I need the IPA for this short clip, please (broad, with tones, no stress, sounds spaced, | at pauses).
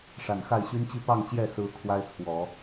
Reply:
ʂ a˨˩ n x a˥˩ ɪ̯ ɕ y˥ n t͡ɕ i˥˧ p ɑ˥˧ ŋ t͡ɕ j ɛ˥˩ s ɹ̩˧˥ kʰ w a˥ ɪ̯ t͡sʰ w ɔ˨˩˦